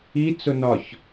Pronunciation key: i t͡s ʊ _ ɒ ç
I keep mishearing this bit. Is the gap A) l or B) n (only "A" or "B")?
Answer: B